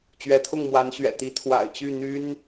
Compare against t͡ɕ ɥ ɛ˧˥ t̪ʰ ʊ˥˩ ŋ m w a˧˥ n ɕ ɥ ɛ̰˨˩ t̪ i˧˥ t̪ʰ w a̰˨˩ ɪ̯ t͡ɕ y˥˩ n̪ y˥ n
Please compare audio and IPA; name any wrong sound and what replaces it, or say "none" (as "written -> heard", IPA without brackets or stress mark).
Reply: none